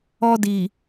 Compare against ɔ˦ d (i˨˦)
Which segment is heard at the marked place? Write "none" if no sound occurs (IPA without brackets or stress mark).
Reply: i˨